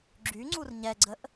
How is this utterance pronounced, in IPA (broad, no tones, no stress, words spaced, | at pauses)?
ɡ͡ǁyŋ͡ǀur ɲɛɡ͡ǀəʔ